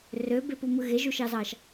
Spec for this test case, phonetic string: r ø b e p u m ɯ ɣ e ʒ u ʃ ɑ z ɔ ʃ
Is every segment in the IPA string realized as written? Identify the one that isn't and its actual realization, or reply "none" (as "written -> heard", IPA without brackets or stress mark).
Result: ɔ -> ɑ